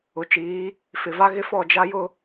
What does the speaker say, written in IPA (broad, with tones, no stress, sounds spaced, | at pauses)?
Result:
ʊ˨ t͡ʃ iː˨˦ | f ɪ˨ v a˦ ɣ ɪ˦ f ɔ˦˨ d͡ʒ a˦ j ʊ˦